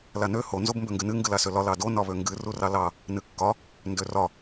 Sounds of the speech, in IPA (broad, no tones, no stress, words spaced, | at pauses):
lanø ho nzobmbøŋɡɨnɨ ŋɡɨlasølɒ lɑdo nɒβøŋɡɨ rurɑlɑ | nɨkːɒ | ndørɒ